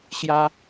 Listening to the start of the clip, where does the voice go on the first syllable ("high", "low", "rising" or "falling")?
high